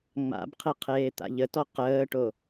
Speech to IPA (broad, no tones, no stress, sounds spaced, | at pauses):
ŋ͡m a̰ b qʰ e qʰ eː t̪ a̰ ʎ ə t ɔ q əː ʈ o